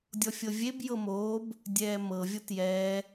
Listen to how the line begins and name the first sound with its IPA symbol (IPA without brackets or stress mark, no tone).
dʲ